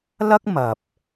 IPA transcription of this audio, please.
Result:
l ɐ˥ k̚ m ɐ˨ p̚

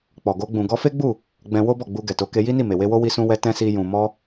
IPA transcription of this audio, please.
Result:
k͡p ɔ˨ ɡ o˧ ɡ͡b ũ˨ ɡ ɔ˧ f e˦ ɡ͡b u˦˨ | ɡ͡b ɛ̃˧ w o˦ b ɔ˦˨ ɡ͡b u˧ ɡ ɛ˨ t o˨˦ k e˧ j i˦ n i˦˨ m e˨ w e˧ w o˦ w i˦ s ũ˦ w ɛ˦ t ɛ̃˦ s i˧ j ũ˨ m ɔ˧

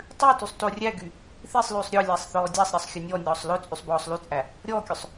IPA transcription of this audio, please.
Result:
tˤ ʉ t y sˤ t o rʲ æ ɡ y | θ i sˤ l ʉː sˤ ɾʲ ɔ lʲ æ sˤ θ ɔː dʲ æ sˤ ɾʲ ɑ sˤ xʲ ɵ nʲ ɔ nʲ ɔː sˤ l ɵ t͡sʼ y sˤ b ɔː sˤ l y t͡sʼ æ | ɾʲ ɔː kʲ ɵ sˤ

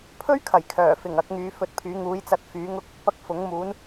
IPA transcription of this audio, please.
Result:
pʰ ɵ˥ ɥ kʰ ɐ˨˩ j kʰ œː˨˩ f ɪ˨˩ ŋ ɐ˨˥ k̚ ŋ yː˨˧ f ɵ˧ t̚ pʰ yː˨˥ ŋ uː˨˧ j t͡s ɐ˨˥ t̚ f yː˨˥ ŋ ʊ˥ k̚ | p ɐ˥ k̚ f ʊ˨˥ ŋ m uː˨˥ n

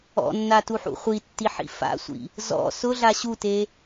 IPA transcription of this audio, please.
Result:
ɔ̰ nː a t u ħ ṵ χʷ i tː i ħ ḭ f a̰ sʷ ḭ | z ɔ̰ s ʊ ɮ a ɕ u t e

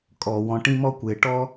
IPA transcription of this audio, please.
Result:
kʼ ɔ˩ w ɔ̃˨ ʈ ĩ˥ m ɔ˥ kʷ ɪː˩ ʈ ɔ˥

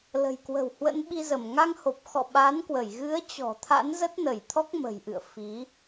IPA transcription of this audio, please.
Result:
l ə̤˨˩ j k w ə̤˨˩ w h w ə̰˧˥ n ɓ i˧ z ə˧˩ m ŋ a˧ ŋ h o˨˩ p̚ x ɔ̰˧˨ ɓ a˨˦ n k w ə˧˩ j ɣ ɨ˨˦ ə̯ t͡ɕ ɔ̤˨˩ t̪ʰ a̰˧˥ n z ə˦˥ t̚ n ə˧˩ j t̪ʰ ɔ˦˥ k̚ m ə̤˨˩ j ʔ ɨ̰˧˨ ə̯ f i˨˦

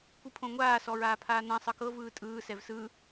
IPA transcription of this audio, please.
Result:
kʷ ɯ pʰ õ ŋʷ aː s ɔ ɹ aː pʰ aː n ã sˤ ɤ k ɤ v ɯː tʼ ɯː s ɛ v s ɯ

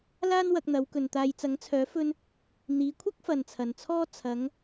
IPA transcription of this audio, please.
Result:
l aː˥ n w ɐ˧ k̚ n̪ ɐ˨˧ w k ɵ˨ n t̪ aː˧ j t͡s ɐ˨˥ ŋ t͡sʰ œː˨˥ f ɵ˧ n | n̪ iː˨˧ kʷʰ ɐ˥ k̚ f ɐ˨ n t͡sʰ ɐ˨ n t͡sʰ ɔː˥ t͡sʰ ɐ˨˧ ŋ

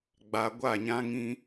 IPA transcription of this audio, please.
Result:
ɡ͡b a˨ ɡʷ a˦˨ ɲ ã˦ ŋ ĩ˦

